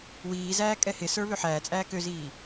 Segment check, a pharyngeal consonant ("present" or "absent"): present